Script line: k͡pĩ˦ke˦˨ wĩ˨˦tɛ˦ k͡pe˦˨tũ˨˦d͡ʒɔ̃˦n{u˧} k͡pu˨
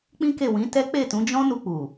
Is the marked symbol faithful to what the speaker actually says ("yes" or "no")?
yes